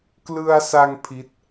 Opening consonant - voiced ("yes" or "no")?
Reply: no